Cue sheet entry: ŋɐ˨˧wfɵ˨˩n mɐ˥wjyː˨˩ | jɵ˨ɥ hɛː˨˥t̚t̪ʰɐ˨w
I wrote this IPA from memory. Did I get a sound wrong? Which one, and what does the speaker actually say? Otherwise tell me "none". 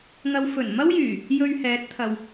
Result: none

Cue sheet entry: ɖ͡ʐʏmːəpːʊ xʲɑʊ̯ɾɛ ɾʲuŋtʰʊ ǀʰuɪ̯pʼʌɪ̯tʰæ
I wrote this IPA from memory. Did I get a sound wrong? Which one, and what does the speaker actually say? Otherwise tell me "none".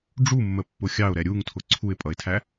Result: ʏ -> u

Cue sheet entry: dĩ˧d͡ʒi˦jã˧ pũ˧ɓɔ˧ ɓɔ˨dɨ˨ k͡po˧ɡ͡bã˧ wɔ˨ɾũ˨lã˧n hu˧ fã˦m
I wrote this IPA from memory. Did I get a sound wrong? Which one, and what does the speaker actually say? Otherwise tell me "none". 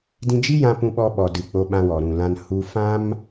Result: ɡ͡b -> ɓ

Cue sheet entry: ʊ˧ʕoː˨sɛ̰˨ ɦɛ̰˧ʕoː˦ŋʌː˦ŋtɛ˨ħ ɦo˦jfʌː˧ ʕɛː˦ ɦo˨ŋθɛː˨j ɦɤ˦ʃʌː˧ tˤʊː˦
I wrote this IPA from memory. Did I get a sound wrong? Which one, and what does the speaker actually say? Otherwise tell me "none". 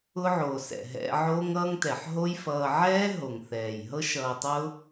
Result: none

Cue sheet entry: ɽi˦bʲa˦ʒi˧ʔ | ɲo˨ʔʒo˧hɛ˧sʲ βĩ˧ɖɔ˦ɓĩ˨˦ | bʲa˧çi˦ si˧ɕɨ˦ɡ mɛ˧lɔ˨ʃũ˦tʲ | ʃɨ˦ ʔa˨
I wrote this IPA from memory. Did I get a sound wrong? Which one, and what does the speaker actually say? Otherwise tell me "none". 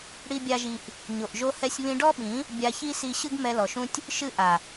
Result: none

